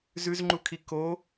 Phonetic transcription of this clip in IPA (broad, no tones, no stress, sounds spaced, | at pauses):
z ʉ z ŋ͡ǃ u kʰ i k o